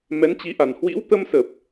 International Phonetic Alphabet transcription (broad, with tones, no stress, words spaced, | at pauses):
mɛ˨˦nt͡ɕi˨˦ʔa˨˩n hwḭ˧˥wt̪ə˧msə˨˩p̚